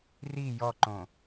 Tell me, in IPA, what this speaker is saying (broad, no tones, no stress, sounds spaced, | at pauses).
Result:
r i j ɔ ǃ õ